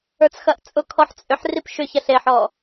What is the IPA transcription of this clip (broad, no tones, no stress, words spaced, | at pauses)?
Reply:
ə˞t͡sxɐʔt͡sʼʊkʰɔħ t͡sʼʏħ ripʃʏçɐɬ eħɔ